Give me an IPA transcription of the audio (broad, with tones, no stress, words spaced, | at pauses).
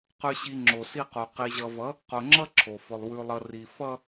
qʉ˨ɕi˨ ŋ͡ǁo˨si˦qo˨ qi˨ʑʌ˨vʌ˨˦ | qo˨ŋ͡ǁʌ˦ ǁʰo˨fʊ˨lˠ wʉ˨lˠʌ˨ ri˨ fʌ˦